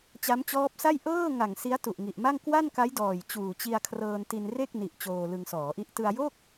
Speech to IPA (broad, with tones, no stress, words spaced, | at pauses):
t͡ɕa˦˥mt͡ɕɔː˦˥p̚sa˥˩j ʔɤː˥˩ŋa˨˩ŋ si˦˥a̯tu˨˩ʔŋi˨˩ʔma˥˩ŋ kwa˥˩nka˦˥jdɔː˨˩j t͡ɕuː˨˩t͡ɕi˧a̯kʰrɤː˧nti˧n re˥˩k̚ni˨˩ʔ t͡ɕoː˧lɯ˧ŋsɔː˩˦ʔi˥˩ʔ tɯ˧a̯jo˥˩k̚